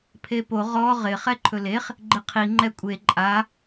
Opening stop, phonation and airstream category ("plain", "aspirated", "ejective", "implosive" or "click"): aspirated